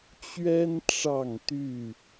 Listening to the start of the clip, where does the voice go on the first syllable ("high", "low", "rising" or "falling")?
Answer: high